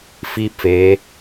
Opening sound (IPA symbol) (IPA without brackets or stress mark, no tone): f